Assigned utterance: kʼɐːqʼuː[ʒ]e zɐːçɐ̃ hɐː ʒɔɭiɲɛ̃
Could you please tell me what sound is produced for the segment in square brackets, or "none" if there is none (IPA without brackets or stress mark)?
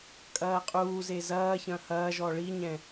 z